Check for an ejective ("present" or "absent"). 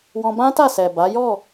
absent